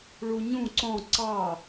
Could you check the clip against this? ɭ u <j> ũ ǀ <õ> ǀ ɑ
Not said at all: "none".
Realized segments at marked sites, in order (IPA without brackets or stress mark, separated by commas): ɲ, ɔ̃